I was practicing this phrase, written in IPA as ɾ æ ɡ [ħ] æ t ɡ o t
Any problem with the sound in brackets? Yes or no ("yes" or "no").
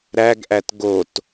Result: yes